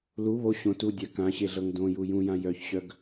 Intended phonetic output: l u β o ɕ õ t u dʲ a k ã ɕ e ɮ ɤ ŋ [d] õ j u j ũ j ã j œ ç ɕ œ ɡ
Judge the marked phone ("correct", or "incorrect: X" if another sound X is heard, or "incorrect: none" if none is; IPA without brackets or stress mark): correct